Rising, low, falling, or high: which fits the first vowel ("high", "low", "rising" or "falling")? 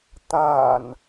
low